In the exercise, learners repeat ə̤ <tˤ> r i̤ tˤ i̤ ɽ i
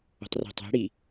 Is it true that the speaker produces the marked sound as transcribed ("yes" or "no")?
yes